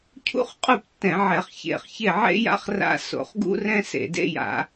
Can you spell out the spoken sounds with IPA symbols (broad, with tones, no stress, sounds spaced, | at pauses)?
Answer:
cʰ ṵ˥ χ qʼ u˥˨ p tː ɛ̃˧˩˧ ʕ ɛ˧˩˧ χ ç ḛ˧˩˧ χ ç e˥˨ ʕ ḛ˥ j a̰˥ χ r a̰˥ s o̰˧˩˧ χ ɡ ṵ˥ r ɛ̃˥ s ḛ˧˩˧ d ḛ˥ j a̰˧˩˧